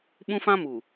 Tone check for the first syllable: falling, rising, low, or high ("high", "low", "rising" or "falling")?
high